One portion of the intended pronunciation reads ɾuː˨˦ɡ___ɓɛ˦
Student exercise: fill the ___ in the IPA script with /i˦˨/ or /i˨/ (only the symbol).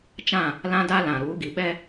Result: i˨